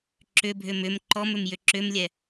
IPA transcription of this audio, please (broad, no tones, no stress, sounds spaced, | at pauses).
ǁ ʏ bʱ ʏ m ʏ m ǃ ɔ m ʏ m j ʏ ǁ ʏ m lʲ ɛ